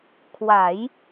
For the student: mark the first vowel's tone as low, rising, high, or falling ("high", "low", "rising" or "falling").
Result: rising